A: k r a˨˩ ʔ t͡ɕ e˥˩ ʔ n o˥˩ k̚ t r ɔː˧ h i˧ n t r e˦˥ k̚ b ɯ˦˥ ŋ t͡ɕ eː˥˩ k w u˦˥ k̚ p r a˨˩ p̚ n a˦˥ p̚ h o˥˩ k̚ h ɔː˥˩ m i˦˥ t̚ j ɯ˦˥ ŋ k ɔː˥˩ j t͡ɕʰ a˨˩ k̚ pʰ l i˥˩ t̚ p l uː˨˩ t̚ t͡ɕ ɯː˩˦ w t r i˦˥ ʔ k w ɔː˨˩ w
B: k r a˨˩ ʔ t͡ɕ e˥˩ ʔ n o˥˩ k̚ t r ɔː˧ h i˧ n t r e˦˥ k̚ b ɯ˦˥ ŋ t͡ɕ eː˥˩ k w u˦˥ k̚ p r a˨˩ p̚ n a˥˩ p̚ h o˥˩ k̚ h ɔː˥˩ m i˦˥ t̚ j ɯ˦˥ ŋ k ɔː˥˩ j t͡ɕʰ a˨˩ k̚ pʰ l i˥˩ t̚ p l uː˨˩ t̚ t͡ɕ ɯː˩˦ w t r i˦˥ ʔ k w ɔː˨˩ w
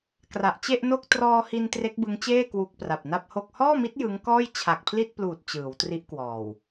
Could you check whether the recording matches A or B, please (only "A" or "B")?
B